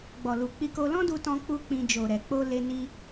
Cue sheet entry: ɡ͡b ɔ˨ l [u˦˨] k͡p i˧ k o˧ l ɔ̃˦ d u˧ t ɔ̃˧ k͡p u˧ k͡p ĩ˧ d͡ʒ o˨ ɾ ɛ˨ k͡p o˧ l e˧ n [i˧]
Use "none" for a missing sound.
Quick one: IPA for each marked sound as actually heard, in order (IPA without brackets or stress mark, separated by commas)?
u˨, i˧